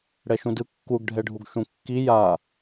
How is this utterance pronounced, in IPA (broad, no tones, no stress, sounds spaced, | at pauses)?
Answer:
ɽ ɛ ʃ ũ d ɯ kː u ɡ ɖʱ ɛ ɖʱ u ɡ ʃ ũ kː i j a